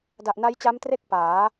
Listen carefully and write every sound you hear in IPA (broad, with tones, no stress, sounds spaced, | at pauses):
d a˨˩ ʔ n a˦˥ j t͡ɕ a˦˥ m t r e˥˩ k̚ p aː˩˦